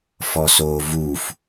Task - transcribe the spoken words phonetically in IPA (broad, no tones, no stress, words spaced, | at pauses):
fɔsoːvuf